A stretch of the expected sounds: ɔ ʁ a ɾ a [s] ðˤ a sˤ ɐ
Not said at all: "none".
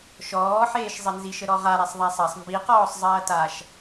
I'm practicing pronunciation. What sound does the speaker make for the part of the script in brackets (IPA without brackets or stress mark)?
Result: sˤ